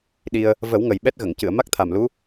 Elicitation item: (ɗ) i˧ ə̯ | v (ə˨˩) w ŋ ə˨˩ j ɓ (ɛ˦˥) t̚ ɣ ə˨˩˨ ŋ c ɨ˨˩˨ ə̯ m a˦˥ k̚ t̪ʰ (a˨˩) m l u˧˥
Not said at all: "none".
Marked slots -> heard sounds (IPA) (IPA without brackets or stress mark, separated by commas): ɗ, ə˨˩˦, ɛ˦˥, a˨˩